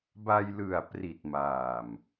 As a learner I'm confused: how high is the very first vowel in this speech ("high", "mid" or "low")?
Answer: low